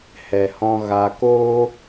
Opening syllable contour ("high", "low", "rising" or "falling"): low